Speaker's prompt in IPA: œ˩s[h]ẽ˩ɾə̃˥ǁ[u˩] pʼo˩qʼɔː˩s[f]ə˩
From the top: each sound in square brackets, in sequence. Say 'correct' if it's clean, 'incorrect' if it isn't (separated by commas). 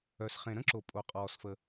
incorrect, incorrect, correct